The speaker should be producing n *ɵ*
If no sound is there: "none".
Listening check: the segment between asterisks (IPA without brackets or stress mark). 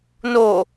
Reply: o